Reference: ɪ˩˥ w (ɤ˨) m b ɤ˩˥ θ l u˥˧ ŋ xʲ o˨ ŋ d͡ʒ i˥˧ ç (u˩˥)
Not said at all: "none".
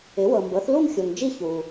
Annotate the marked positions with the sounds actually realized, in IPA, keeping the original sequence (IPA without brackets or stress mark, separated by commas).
ɤ˨, u˨